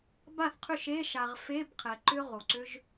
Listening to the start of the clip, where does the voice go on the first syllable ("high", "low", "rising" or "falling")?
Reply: falling